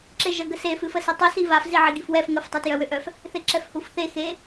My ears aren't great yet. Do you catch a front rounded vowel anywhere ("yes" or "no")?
yes